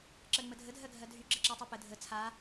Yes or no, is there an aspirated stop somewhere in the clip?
yes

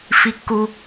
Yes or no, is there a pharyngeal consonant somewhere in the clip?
no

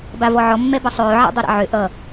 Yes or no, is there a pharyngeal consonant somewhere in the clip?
yes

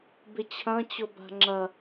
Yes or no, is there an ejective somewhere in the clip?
no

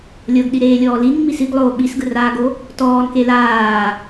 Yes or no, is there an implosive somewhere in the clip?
yes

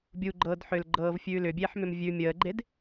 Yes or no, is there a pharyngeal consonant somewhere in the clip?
yes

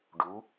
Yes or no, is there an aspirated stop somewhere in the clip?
no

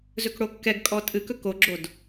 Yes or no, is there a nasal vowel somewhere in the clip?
no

